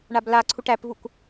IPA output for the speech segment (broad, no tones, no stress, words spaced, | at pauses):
ɳabla ǀʰuʈæpvuk